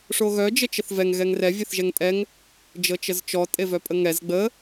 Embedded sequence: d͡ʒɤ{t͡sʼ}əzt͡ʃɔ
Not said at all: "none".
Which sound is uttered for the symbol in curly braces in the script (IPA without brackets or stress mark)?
t͡ʃ